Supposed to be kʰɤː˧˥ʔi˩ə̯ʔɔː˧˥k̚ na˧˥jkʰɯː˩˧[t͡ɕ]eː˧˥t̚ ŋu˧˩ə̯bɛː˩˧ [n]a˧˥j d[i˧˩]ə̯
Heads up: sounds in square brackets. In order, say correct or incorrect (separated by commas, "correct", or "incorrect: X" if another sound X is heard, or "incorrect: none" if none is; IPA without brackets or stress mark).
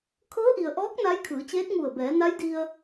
correct, correct, incorrect: i˧